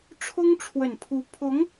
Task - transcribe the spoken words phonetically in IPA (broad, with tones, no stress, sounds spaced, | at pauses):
ʈ͡ʂʰ ʊ˥ ŋ ʈ͡ʂʰ w ə˨˩ n pʰ u˧˥ pʰ ʊ˧˥ ŋ